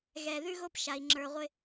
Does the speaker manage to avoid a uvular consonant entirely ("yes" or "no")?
no